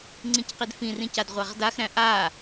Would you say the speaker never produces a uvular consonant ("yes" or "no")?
no